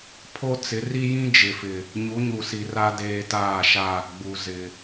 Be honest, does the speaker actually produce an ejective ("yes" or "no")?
no